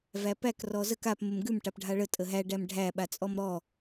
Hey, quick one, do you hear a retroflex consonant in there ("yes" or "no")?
yes